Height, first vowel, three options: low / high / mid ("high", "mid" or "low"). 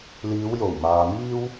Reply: high